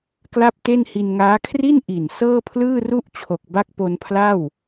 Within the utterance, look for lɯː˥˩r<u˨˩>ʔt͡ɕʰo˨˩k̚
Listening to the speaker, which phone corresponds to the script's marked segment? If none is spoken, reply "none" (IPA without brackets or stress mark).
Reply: u˥˩